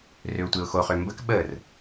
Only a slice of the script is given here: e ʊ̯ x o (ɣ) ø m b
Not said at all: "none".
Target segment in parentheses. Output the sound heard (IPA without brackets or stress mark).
χ